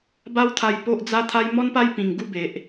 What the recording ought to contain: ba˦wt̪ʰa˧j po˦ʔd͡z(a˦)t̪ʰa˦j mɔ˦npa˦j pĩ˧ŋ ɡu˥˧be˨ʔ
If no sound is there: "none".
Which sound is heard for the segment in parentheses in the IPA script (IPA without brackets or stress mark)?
a˦